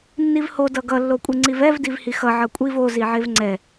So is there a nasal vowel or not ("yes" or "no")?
no